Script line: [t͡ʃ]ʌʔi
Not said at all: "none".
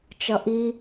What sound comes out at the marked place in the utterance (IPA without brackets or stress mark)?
t͡ʃ